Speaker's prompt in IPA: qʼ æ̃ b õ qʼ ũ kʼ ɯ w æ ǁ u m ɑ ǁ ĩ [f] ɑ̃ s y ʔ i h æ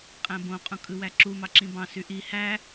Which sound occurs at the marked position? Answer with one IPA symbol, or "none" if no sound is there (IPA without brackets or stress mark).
b